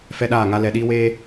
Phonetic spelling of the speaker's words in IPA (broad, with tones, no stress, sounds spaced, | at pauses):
f ɛ˦ ɗ aː˦˨ ŋ a˦ l ɛ˧ ɗ iː˦ w eː˦